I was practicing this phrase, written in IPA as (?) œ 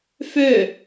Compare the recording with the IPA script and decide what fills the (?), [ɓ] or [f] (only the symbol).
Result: f